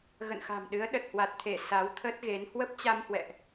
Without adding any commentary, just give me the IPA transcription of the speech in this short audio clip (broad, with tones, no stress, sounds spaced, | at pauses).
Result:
ɣ ə̰˧˨ n x a̤˨˩ m ɗ ɨ˨˦ ə̯ ɗ ə˨˩ t̚ h w a˨˩ t̚ t̪ʰ e˧˩ s a˨˦ w t̪ʰ ə˦˥ t̚ ɣ e˨˦ n h w ə˦˥ p̚ t͡ɕ a˧ m h w ɛ̰˧˨ ʔ